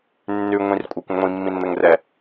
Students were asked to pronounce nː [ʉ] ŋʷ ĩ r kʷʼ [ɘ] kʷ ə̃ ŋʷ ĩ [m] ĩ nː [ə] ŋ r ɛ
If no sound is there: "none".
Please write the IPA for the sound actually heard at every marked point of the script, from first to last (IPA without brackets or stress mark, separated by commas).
ʉ, ɛ, mː, ə